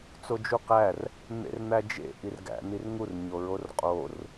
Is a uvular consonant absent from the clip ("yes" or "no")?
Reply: no